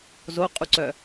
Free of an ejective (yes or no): no